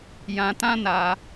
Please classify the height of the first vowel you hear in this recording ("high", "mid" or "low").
low